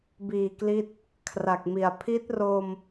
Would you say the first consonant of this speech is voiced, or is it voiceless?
voiced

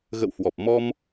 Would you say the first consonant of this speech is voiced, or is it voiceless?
voiced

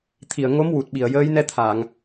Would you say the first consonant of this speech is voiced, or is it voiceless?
voiceless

